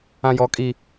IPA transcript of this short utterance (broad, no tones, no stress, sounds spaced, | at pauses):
ã j ɔ kʼ i